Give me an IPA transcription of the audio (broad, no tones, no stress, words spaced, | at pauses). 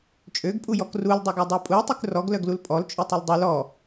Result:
t͡ʃʼøɡpʼujɔk ruldˤøɡœ dˤøpʼuə̯tˤyk rɔɡlœɡ lulpʼɔlt͡ʃʼytˤœl dˤul ɔ